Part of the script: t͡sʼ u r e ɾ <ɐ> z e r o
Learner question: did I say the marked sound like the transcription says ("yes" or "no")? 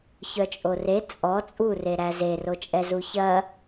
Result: no